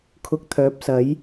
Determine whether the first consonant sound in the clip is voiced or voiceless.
voiceless